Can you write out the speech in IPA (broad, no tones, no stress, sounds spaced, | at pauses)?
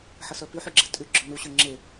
ħ ə s œ p y ħ y ɡ͡ǁ ɛ tʼ y ɡ͡ǁ œ n u ɕ ø ŋ͡ǁ e